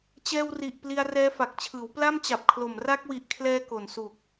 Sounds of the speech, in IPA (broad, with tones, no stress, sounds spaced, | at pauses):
t͡ɕ ɛː˧ w r i˨˩ ʔ p l i˧ a̯ r ɛː˦˥ f a˨˩ k̚ t͡ɕʰ ɯː˩˦ w p l a˥˩ m t͡ɕ a˨˩ p̚ kʰ l o˨˩ m r a˦˥ k̚ w i˨˩ ʔ kʰ l ɛː˧ k o˨˩ n s u˨˩ k̚